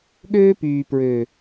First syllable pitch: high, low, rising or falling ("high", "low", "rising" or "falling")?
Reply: high